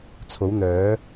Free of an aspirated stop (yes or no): no